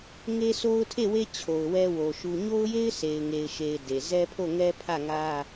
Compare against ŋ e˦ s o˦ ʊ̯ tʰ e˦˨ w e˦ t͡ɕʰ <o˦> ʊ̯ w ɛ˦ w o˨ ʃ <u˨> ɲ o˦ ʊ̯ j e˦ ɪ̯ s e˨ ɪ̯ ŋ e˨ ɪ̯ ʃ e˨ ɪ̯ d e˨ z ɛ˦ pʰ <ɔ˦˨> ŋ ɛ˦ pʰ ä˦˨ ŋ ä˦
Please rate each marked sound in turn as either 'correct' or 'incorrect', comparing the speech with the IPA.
incorrect, correct, incorrect

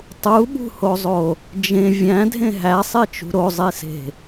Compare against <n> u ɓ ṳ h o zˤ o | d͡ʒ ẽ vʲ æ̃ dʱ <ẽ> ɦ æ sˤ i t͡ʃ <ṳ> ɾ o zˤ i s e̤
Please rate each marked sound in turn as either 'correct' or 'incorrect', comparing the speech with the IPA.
incorrect, correct, correct

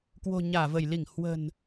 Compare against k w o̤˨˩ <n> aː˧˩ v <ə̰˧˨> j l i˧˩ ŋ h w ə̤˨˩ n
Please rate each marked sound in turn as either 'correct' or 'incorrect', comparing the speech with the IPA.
incorrect, incorrect

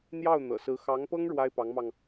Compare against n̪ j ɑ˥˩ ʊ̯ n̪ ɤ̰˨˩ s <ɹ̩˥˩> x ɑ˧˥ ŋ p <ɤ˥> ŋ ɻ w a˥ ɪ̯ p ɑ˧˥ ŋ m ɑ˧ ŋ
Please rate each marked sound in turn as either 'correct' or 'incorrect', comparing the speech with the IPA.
incorrect, correct

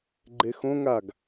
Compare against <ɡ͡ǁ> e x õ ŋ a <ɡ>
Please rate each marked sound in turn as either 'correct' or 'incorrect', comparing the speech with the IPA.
incorrect, correct

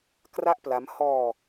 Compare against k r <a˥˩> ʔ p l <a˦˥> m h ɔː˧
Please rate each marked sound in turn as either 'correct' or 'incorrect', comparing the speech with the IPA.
correct, correct

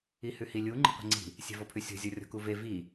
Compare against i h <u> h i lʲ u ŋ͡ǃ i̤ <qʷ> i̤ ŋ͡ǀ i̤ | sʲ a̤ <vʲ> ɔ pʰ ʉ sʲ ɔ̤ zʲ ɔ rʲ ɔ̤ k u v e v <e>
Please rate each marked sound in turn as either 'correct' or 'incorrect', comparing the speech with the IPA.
incorrect, correct, incorrect, incorrect

